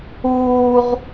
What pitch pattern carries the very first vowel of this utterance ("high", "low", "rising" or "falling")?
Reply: high